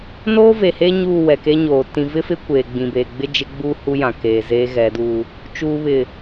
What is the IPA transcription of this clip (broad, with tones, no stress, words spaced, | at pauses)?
noː˦ ve˨heː˦ ɲuː˦˨wɛ˨keː˦ɲoː˨ tĩ˨vɪ˦fɪ˦ kʷeː˨ɡ͡bĩ˨beː˨ ɡ͡bɪ˦d͡ʒɪ˦ɡ͡buː˦ hu˦jã˨keː˨zeː˦ ɣɛ˨˦du˦ | t͡ʃuː˨βɪ˨